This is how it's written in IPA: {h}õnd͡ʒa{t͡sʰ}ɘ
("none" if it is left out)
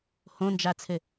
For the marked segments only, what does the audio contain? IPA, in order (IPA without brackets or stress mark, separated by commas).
h, t͡sʰ